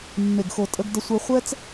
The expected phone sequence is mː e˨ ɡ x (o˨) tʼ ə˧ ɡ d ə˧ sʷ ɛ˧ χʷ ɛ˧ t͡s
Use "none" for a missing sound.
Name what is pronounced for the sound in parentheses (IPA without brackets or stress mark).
o˨